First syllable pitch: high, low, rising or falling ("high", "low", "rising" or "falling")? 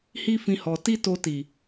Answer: high